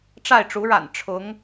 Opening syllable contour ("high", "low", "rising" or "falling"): falling